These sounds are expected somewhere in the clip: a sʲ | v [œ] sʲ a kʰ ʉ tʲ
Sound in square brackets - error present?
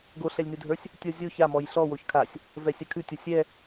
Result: yes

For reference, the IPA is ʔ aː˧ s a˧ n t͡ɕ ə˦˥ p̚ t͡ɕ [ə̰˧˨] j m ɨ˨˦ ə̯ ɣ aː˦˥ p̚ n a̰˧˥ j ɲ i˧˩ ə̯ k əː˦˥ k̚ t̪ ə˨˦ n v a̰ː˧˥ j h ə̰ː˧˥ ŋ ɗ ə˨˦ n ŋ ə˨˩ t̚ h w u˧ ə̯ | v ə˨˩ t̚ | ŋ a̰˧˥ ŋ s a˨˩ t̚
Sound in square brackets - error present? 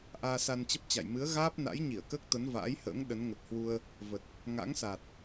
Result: yes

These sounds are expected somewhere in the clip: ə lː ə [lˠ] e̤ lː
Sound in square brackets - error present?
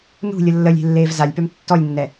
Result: yes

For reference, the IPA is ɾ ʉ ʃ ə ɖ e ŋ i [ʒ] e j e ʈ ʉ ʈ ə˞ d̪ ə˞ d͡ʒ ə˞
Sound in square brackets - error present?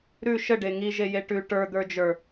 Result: no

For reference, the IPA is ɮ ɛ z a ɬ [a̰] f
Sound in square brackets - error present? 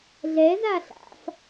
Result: no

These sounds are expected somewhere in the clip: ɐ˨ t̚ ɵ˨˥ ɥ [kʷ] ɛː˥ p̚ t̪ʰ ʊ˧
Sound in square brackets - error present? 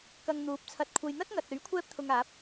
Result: yes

